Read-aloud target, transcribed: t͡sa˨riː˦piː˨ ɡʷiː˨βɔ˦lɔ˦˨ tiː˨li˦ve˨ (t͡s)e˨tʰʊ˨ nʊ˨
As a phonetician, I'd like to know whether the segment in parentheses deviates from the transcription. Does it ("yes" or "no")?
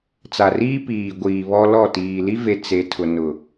no